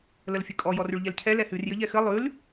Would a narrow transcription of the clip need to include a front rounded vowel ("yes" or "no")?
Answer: no